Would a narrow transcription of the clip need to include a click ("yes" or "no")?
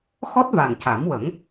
no